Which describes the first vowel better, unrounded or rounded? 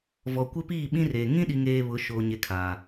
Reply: rounded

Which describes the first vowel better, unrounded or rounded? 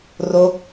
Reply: rounded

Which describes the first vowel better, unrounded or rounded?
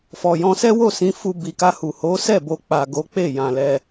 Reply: rounded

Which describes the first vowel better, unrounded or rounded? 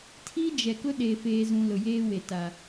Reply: unrounded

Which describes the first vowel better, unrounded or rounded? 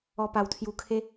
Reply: rounded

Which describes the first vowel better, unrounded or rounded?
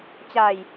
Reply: unrounded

